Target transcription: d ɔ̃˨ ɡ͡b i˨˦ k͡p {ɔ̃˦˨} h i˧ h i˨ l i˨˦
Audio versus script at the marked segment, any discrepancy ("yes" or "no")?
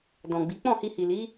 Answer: no